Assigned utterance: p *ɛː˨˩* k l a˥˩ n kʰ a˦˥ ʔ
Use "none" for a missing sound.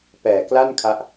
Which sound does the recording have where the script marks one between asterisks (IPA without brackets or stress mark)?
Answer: ɛː˨˩